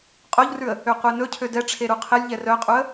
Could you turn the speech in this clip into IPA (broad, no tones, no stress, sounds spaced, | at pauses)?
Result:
qʼ o ʎ r ʉ ə̯ | ø qʷ e n ɵ cʰ ø d ɛ ʈ͡ʂʰ e ɾ u qʰ e lʲ ʎ ɛ r œ qʼ u ə̯